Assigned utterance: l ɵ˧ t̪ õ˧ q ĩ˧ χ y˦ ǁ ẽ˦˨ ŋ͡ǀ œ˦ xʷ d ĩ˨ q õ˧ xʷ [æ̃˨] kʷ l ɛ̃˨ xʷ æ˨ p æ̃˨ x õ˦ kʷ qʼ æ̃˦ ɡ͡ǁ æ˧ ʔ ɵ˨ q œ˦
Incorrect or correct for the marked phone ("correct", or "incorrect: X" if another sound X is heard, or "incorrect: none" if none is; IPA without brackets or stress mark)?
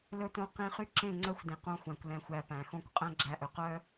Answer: correct